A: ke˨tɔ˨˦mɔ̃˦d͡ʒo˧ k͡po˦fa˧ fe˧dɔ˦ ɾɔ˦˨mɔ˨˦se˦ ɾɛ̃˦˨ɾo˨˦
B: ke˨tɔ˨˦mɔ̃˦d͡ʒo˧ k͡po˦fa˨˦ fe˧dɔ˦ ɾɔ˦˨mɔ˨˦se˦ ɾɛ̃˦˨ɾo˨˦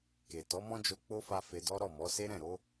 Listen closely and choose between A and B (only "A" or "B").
A